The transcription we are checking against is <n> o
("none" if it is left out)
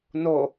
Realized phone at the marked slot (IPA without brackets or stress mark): n